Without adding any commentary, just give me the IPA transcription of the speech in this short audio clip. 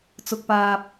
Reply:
t͡s ʊ˨ k̚ p aː˨ p̚

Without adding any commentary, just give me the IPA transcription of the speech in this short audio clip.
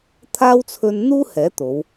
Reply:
t̪ʰ aː˥ w t͡sʰ ɵ˥ n n̪ uː˥ h ɛː˨˥ t̪ o˨˧ w

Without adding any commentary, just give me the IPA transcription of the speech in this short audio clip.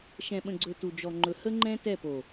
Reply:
ʃ ɛ̃˨ ɓ ə̃˨ ɡ͡ǀ ɵ˨ t u˨ d͡ʒ ɔ˨ ŋ͡ǃ ɵ˨ h ə˦ ŋ͡ǃ ɛ̃˦ t ɛ˦˨ p o˨

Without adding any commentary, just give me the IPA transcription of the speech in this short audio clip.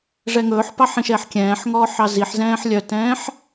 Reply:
ʐ ɛ ŋ ɵː ħ p ɑ ħ ĩ ʃ ɛ ħ kʲ ɛ̃ː ħ ŋ ɔː ħ ɑ z i ħ z ɛ̃ː ħ lʲ œ t ɛ̃ː ħ

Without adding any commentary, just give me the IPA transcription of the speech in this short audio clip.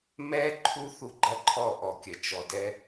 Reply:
m ɛː˦ ǃʰ u˦ θ u˦ ɡ͡ǃ ɐ˦ ǃʰ ɔ˦˨ ʔ ɔ˨ kʲ ɐ˨ t͡ʃ ɔ˨ d ɛ˦

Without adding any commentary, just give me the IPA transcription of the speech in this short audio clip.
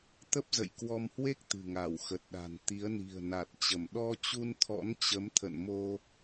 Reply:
t̪ ə˦˥ p̚ z ə̰˧˨ j k w ɔ˧ m h w e˦˥ k̚ t̪ ɨ̤˨˩ ŋ a˧˩ w x ə˨˩ t̚ ɗ a̤˨˩ n t̪ i˨˦ ə̯ n i̤˨˩ ə̯ n a˨˩ t̚ t͡ɕ ə˧˩ m ɗ ɔ˧ t͡ɕ u˧ n t̪ʰ ɔ̰˧˥ n t͡ɕ ə˨˦ m t̪ʰ ə̰˧˨ n m o˧

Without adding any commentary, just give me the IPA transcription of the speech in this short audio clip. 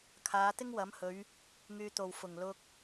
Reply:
kʰ aː˨˧ t̪ ɪ˥ ŋ w ɐ˨˥ m h ɵ˨˧ ɥ | ŋ yː˧ t̪ o˨ w f ʊ˨˩ ŋ l ʊ˧ k̚

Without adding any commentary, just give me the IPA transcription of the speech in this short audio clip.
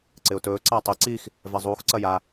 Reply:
ǀ ɪ ʊ̯ t ɵː ǀ a tˤ ɪ ǀ i x | v ɛ zˤ uː x ǀ ɐ j a

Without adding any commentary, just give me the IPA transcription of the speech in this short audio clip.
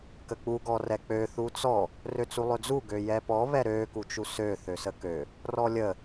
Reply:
k ə k͡p u ɡ ɔ r ɛ k͡p ø θ u t͡s ɔ | r ø t͡s u lˠ ø d͡z u ɡ ø j ɛ p ɔ β ɛ ɾ ø k u t͡ʃ u s ø θ ø s ə k ø | r ɔ lʲ ə

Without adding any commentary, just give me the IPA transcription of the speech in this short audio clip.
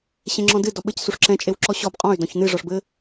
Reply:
ɕ ẽ ŋ͡ǁ ɔ̃ d ɨ d ɔ ɓ ɘ c s u ʂ ǁ ɛ̃ t͡ʃʼ e w ǁ ɔ ɕ ɔ b qʼ ɔ̃ y̯ d ɔ̃ ç n ɨ ʐ ɔ ʂ b ɘ

